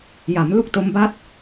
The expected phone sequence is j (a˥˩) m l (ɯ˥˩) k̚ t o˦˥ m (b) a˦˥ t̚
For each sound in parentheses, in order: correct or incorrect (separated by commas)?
incorrect, incorrect, correct